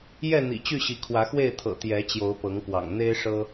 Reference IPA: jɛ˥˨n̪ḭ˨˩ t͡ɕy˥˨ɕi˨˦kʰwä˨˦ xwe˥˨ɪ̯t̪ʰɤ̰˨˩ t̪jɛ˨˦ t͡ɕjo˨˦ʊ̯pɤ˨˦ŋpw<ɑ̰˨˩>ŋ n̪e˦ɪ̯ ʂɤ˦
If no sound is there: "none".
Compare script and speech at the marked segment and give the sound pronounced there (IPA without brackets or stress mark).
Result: ɑ̰˨˩